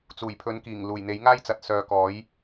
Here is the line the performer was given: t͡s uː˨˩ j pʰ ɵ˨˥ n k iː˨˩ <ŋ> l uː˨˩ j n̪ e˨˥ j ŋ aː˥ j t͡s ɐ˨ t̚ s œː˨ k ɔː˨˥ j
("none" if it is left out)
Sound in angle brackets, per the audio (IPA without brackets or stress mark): ŋ